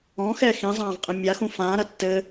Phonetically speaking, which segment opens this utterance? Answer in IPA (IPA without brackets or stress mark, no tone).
ɔ̃